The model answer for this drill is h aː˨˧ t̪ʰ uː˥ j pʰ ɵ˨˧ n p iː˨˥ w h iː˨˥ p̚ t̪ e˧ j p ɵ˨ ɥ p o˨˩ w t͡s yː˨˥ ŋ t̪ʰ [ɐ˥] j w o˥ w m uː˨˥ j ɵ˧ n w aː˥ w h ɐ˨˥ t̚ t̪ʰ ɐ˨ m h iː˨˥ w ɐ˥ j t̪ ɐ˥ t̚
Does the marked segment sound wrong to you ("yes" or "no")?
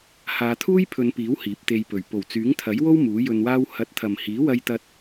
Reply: yes